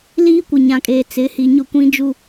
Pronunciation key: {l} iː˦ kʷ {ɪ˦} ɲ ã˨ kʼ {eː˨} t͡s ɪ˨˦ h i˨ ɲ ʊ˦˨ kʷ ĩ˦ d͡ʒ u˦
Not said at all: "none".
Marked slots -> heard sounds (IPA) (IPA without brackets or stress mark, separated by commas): l, ɪ˨, eː˨